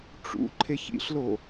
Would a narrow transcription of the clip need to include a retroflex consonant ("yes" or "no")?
yes